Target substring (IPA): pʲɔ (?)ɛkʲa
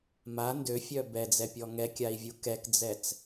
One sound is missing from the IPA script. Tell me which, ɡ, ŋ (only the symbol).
ŋ